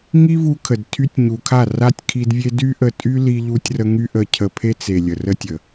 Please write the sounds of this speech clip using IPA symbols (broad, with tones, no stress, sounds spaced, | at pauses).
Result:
ŋ i˦ v u˧ kʰ ə˨ d tʰ y˧ tʲ ɲ u˨ kʰ a˦˨ r a˦ tʲ kʰ i˧ d vʲ e˦ d y˦ ʔ ə˧ tʼ y˦ l i˧ ʎ u˧ tʲ r ə˧ ŋ y˦ ʔ ə˧ cʰ ə˧ pʰ e˦ t͡s e˨ lʲ ə˨ r ə˧ tʲ ə˨